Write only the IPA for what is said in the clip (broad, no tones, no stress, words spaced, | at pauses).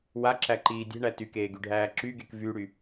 waǁæǃiː dʲe̤ɳæ tykeːɡyɖʱæː ǁyɡek vyɽy